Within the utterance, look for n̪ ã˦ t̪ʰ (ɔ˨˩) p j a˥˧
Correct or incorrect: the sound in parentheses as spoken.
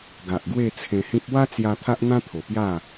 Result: incorrect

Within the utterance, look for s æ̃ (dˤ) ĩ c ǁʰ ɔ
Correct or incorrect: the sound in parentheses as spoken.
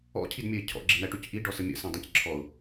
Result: correct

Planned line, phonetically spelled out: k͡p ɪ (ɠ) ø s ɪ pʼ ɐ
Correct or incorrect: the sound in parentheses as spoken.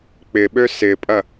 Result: incorrect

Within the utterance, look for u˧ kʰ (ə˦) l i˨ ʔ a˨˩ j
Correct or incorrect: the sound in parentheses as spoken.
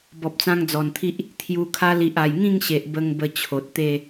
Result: incorrect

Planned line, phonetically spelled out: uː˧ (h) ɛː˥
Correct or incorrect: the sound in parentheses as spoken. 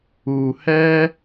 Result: correct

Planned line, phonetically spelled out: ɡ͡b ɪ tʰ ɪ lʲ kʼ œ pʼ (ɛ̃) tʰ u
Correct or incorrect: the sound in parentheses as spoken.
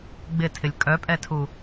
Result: incorrect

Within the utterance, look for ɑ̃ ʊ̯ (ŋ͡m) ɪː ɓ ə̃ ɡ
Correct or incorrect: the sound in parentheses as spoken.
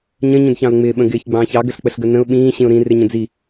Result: correct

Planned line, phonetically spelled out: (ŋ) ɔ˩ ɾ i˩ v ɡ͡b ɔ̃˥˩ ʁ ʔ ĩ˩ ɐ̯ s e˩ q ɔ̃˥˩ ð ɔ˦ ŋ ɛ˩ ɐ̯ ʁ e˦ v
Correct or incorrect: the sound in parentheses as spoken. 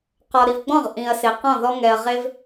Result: incorrect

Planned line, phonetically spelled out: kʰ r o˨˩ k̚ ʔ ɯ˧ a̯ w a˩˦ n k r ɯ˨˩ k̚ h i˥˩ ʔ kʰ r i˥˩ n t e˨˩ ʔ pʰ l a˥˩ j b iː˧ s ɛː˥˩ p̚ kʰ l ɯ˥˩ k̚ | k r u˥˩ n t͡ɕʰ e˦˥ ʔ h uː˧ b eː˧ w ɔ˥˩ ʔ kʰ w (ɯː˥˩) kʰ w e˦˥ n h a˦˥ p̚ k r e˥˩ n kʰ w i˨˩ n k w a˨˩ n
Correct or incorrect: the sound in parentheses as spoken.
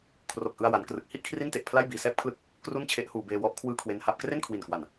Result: correct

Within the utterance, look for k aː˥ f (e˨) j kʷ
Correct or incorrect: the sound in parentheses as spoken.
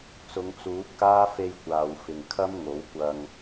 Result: incorrect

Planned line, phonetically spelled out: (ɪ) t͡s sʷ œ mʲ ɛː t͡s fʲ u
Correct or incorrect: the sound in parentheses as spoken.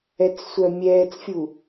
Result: incorrect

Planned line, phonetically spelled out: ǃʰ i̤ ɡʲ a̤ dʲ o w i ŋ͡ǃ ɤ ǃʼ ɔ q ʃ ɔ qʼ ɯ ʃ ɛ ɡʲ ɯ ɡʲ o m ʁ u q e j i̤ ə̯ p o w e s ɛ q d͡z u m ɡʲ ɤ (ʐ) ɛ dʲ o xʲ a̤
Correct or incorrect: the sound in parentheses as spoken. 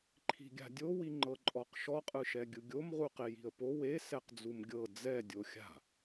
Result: incorrect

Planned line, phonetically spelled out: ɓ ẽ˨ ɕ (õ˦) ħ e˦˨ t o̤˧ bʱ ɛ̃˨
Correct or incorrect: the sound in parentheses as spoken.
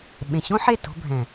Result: correct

